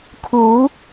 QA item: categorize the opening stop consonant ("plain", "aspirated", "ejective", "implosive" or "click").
aspirated